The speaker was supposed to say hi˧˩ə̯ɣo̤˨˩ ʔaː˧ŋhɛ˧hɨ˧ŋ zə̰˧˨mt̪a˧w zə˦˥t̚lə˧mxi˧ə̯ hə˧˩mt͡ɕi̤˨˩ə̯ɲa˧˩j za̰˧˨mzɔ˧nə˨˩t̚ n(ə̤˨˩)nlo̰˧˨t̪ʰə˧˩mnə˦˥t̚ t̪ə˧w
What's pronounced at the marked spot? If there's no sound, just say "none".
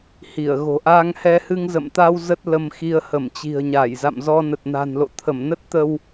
a̤˨˩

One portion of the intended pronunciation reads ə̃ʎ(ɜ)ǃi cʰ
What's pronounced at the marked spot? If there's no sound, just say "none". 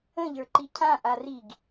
ə˞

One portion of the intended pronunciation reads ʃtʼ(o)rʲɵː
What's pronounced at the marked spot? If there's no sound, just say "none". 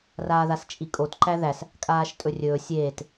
ɵ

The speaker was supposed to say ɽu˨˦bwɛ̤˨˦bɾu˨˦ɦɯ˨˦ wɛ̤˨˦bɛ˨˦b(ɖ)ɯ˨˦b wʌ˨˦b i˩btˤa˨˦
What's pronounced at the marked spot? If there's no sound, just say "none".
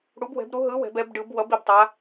ɖ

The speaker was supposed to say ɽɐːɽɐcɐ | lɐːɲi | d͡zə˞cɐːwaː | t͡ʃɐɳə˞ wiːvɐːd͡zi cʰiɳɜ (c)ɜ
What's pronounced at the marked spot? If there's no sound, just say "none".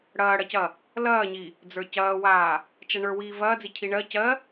c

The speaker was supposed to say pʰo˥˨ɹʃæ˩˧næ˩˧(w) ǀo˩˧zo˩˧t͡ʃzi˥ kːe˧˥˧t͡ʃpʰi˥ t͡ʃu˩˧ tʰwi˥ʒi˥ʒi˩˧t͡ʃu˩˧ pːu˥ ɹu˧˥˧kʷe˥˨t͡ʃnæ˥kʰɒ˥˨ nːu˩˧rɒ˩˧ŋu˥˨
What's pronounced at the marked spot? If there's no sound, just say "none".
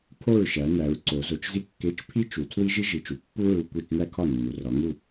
ɹ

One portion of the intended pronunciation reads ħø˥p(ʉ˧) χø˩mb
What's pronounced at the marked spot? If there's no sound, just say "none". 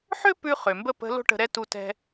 ʉ˧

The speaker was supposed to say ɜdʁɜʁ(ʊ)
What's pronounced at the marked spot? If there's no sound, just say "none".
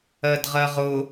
ʊ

